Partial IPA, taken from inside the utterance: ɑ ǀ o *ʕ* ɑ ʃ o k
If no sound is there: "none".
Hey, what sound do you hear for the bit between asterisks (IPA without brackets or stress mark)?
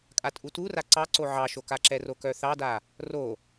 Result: ʕ